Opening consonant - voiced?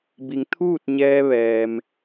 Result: yes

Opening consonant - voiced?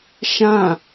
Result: no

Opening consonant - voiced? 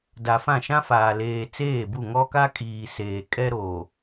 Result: yes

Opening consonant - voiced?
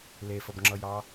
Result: yes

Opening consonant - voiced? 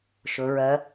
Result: no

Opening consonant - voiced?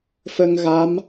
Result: no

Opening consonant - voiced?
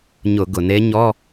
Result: yes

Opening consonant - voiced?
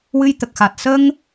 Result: yes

